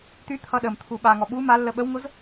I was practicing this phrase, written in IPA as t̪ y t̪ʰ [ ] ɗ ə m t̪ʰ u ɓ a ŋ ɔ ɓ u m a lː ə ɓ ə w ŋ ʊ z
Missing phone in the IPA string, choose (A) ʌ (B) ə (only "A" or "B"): A